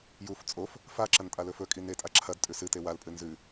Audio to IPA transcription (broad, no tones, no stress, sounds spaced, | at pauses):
j u f t͡sʼ o f | f a ǁ ɐ n tʼ a l ɵ f ɵ kʼ i n e tʼ a ǁʰ ɐ d tʼ ʉ s ɨ t e w a l pʼ ɨ n z ʉ